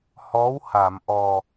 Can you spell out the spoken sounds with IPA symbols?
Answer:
h ɔ˧˥ w h a˨˩˨ m ʔ ɔ˨˩

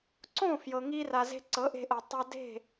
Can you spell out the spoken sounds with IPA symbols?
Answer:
ǀ õ˦˨ f j ɤ˨ ŋ i˧ r a˨ z e̤˧ ǀ ɤ˨˦ ʔ e̤˧ ʔ ɤ˨ tˤ a˧ d e̤˦˨

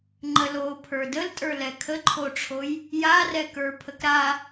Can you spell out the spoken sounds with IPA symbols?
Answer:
ŋ͡ǃ ə l o pʰ ə˞ d ə l tʼ ə˞ l ɛ kʰ ə ǃʰ o ʈ͡ʂʰ o j | j a r ɛ k ə˞ pʰ ə k ɾ a

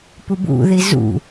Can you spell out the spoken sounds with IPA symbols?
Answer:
p u b ṵ ð i z ṵ

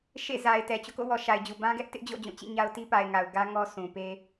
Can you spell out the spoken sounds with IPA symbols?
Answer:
ʃ ḛ˦˨ z a˨ ɪ̯ t ɛ˨ t͡ɕ o̰˦˨ k o̰˦˨ w ɔ˨ ʃ a˨ ɪ̯ d͡ʑ u˨ b ã˦ ɡ ɛ˦ ʔ t ɪ˦ ʔ d͡ʑ o̰˦˨ d͡ʑ ũ˦˨ t͡ɕ ḭ˦˨ ɲ a˦ ʊ̯ t i˦ p a˨ ɪ̯ ŋ a˨ ʊ̯ ɡ ä˦ ŋ ɔ˦ s ũ˨ p e˦

